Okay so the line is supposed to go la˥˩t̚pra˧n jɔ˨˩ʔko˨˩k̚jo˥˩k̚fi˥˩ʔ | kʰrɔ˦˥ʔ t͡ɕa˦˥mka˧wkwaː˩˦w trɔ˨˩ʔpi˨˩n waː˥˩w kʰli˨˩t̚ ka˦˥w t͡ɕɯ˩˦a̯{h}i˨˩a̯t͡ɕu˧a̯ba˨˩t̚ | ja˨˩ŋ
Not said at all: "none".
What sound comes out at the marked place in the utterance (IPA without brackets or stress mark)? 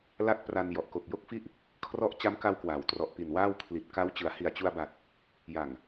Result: h